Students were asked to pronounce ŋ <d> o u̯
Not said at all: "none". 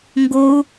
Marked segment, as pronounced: ɡ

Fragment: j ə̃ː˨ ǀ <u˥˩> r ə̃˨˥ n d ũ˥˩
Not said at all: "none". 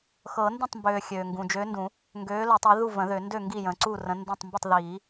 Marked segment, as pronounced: u˥˩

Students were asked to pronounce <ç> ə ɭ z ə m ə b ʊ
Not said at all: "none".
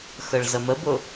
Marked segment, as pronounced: x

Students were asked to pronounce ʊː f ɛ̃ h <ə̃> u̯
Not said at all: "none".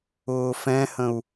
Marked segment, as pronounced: ə̃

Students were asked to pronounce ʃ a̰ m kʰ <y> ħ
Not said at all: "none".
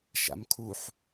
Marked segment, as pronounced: u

